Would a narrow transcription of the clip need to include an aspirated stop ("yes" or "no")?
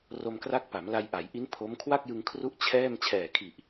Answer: yes